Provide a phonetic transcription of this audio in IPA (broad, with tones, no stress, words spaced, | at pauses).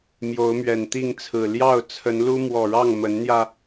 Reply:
mjo˨˦ʊ̯mɥɛ˨˩nt̪i˥˨ŋt͡sʰɹ̩˨˩ ljɑ˥˨ʊ̯ t͡sʰə˨˦nlu˦ mwɔ˨˩ɻɑ˥˨ŋ mə˨˦nn̪jä˧